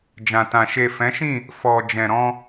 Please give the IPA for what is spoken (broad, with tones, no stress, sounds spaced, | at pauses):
d͡ʒ ã˨ t ã˨ ʃ e˨ f ɛ̃˨˦ ʃ ĩ˦˨ | f ɔ˨ d͡ʒ ɛ̃˨ ɾ ɔ̃˧